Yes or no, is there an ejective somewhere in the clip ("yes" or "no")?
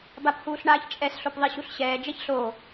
yes